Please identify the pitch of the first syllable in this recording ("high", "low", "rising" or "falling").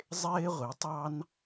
high